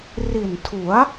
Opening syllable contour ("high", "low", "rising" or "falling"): low